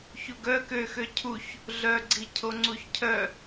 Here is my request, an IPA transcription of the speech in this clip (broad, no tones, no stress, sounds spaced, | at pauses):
ç u ɡ œ k ø x ø cʰ u ç | ɮ œ ɡ͡ǀ i cʰ o ŋ͡ǀ u ç cʰ œ